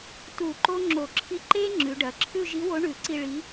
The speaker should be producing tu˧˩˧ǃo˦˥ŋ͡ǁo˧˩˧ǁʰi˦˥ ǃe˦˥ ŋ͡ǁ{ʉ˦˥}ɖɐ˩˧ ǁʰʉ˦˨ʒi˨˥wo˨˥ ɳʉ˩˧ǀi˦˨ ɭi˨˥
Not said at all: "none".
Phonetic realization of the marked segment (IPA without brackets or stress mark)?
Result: ʉ˩˧